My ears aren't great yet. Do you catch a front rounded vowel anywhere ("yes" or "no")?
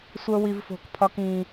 no